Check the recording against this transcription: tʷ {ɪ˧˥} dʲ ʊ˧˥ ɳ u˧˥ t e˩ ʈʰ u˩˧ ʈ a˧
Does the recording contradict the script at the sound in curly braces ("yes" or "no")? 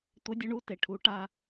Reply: no